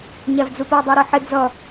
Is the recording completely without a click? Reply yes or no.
yes